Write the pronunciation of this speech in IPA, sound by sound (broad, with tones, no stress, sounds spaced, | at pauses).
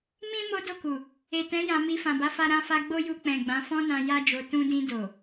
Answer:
m ĩ˦ m o˦ d o˦˨ k u˨ | e˨ t ɛ̃˨˦ j ã˧ m i˧ f ã˨ b a˨˦ f a˧ ɾ ã˧ f a˧ ɡ͡b o˦ j u˧ k͡p ɛ̃˨ ɡ͡b ã˨˦ f ɔ̃˦ n ã˧ j a˦ d͡ʒ o˧ t ũ˧ d ĩ˧ d o˨